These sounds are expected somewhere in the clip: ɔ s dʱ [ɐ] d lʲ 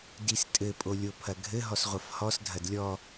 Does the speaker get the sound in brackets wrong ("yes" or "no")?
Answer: no